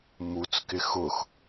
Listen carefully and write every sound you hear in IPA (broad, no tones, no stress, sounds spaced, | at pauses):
m u t͡s k ɪ x ʊ x